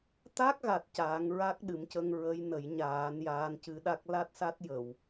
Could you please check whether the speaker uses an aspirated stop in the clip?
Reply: no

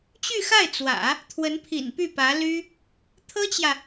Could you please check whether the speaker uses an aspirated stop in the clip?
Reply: yes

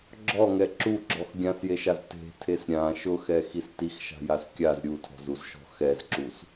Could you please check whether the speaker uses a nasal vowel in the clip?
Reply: yes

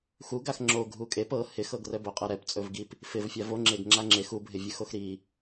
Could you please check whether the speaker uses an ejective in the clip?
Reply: yes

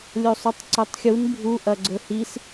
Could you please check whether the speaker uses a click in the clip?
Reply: yes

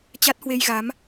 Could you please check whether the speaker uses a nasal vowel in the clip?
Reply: no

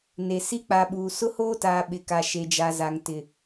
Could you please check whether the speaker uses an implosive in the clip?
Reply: yes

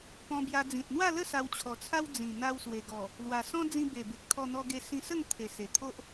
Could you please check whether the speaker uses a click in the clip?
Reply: no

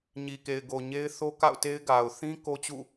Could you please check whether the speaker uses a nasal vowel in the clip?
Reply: yes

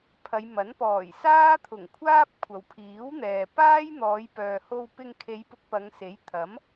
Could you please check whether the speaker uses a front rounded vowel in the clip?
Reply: yes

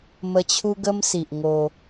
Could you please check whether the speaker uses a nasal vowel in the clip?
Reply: no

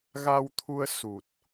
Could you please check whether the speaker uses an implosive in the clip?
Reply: no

